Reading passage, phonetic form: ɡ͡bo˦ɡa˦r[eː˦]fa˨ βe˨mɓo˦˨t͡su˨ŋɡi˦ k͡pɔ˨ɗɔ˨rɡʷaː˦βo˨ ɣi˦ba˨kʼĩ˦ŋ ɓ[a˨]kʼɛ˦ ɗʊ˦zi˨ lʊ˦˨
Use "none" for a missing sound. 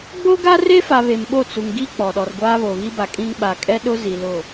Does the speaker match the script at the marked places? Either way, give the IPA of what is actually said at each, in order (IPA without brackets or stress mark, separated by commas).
e˦, a˨